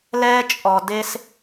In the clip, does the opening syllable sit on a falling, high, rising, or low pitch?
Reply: high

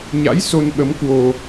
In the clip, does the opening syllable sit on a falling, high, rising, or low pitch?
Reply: rising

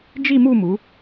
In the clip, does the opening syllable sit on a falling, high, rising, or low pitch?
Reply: falling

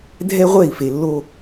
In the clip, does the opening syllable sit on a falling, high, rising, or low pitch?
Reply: high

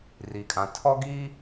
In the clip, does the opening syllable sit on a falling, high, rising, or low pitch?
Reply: low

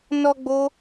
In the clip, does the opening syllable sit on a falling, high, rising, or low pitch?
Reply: high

